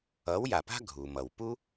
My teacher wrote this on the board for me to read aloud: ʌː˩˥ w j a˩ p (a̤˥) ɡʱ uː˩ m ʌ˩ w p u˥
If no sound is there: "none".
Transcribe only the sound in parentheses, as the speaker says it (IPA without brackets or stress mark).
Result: a̤˥